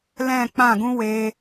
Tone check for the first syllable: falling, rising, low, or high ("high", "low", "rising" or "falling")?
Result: falling